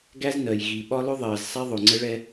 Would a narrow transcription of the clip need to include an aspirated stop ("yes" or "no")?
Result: no